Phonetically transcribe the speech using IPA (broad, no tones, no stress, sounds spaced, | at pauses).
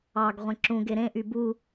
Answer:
ɑ ɡ ʁʷ ẽ ǁ ũ ɡ e ɾ ẽ ʔ y b u